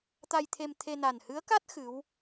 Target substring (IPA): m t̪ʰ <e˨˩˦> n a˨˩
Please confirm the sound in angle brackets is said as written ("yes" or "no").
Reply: no